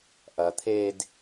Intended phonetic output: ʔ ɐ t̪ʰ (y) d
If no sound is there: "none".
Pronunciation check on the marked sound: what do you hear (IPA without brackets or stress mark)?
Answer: e